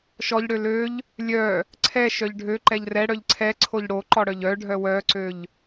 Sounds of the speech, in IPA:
ʃɔʎɽø løʎ | lʲœ | ǀʰɛ ʃœʎɖʱø ǃɛʎrɛ ɽœʎǀʰɛǀʰoʎ ɽoǃɔɽœʎ œ ɖʱœwœǀøʎ

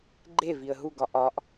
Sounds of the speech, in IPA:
ɡ͡ǃeviə̯ ɦuɡɒ ʔɒʔ

